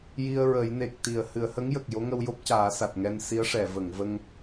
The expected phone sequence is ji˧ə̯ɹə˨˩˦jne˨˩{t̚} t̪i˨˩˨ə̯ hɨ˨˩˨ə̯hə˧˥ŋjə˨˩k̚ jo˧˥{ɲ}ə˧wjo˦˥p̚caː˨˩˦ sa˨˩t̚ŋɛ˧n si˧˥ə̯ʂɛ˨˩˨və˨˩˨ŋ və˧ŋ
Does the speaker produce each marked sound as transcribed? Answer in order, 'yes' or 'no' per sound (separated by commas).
no, no